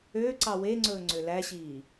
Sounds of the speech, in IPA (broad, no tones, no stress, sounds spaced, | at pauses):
ø ǀ ɑ w e ŋ͡ǀ ɵː ŋ͡ǀ ø l æ ɕ iː